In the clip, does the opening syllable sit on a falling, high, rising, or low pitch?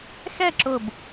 falling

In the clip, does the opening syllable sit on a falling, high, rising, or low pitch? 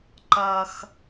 high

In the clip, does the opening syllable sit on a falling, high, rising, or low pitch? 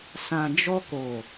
low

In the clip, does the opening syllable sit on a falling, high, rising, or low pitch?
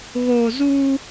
low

